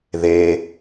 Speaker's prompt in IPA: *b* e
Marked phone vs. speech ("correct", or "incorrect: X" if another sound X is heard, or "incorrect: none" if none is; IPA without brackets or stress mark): incorrect: ð